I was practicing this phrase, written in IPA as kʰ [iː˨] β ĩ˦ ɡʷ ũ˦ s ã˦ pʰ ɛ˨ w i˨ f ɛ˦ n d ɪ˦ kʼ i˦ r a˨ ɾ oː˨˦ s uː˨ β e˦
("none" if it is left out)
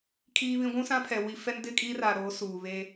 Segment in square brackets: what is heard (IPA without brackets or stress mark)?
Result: iː˦